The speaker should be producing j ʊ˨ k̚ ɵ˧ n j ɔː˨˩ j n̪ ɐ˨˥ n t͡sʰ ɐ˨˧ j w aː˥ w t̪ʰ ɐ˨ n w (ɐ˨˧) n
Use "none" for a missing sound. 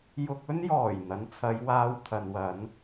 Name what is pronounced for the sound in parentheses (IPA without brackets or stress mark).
ɐ˨˧